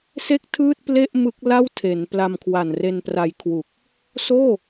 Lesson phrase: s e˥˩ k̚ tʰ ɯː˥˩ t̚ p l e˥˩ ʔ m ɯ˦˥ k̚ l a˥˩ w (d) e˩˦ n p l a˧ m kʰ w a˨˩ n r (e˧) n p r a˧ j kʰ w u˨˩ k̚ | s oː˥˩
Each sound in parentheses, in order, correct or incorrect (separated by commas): incorrect, correct